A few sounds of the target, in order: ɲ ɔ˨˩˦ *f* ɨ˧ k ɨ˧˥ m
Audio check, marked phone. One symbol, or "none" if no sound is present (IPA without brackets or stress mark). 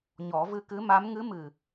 v